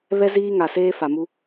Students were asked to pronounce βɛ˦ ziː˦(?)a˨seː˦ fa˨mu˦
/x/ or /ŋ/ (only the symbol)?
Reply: ŋ